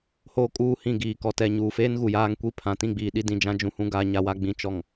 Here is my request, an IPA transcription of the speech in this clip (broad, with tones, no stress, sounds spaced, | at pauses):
h oː˦ kʼ uː˦˨ h ĩ˦˨ ɡ iː˨ k ɔ˨ t ɛ˨ ɲ uː˨ f eː˦ n ɣ u˨ j aː˦ ŋ kʷ i˦ pʰ ã˨ t ĩ˦˨ ɡ͡b iː˨ ɗ i˦ d ĩ˨ d͡ʒ ã˦ d͡ʒ ũ˦ h ũ˦ ɡ a˨ ɲ a˨ w a˨ ɡ͡b ĩ˨ t͡ʃ ɔ˨ ŋ